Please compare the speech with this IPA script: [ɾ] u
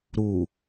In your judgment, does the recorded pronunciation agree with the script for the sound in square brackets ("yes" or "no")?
yes